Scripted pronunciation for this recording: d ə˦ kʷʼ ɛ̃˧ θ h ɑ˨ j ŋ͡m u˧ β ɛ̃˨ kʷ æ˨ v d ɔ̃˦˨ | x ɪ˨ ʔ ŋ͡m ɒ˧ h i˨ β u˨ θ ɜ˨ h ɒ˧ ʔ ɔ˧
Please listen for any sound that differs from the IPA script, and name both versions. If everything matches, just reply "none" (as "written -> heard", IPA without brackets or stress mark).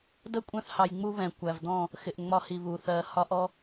none